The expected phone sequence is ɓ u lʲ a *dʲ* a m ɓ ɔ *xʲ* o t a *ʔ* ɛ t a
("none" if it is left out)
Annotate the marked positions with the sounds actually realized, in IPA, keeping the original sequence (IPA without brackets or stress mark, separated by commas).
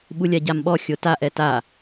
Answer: ɟ, xʲ, ʔ